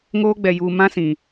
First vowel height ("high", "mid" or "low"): mid